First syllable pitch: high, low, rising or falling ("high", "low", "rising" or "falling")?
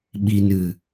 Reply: low